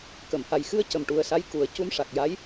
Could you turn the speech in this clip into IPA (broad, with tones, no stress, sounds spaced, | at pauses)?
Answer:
k ə˨˩˨ m h a˨˩ j x ɨ˧ ə̯ c ə˨˩ m ʈ u˨˩ ə̯ s a˧˥ j k u˨˩˦ ə̯ c u˧ m ʂ a˨˩ k̚ j a˧˥ j